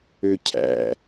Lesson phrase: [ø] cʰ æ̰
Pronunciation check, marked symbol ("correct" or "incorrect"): correct